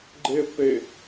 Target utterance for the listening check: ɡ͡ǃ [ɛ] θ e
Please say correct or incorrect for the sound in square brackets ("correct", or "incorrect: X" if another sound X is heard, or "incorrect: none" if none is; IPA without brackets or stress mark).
incorrect: e